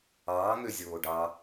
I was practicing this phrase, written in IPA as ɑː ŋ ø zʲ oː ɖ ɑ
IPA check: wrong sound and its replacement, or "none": none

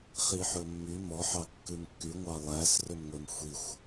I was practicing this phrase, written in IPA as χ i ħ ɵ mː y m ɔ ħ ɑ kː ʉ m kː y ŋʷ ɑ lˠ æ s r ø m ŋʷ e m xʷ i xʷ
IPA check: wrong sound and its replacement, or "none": none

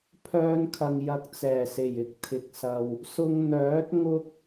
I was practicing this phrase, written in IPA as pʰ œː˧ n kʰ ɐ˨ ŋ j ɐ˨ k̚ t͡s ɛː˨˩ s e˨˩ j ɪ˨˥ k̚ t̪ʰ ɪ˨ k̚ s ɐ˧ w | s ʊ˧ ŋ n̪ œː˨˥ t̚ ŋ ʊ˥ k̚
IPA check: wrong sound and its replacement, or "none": none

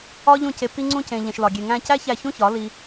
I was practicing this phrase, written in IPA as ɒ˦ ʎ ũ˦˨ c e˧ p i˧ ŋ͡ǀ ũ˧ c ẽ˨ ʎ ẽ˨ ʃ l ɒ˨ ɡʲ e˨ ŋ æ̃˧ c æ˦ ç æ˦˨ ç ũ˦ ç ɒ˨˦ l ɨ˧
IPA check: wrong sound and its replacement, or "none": ɨ˧ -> i˧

